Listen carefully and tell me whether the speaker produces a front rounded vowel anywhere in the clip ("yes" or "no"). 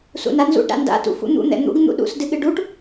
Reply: no